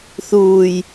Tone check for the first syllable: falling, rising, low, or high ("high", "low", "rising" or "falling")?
low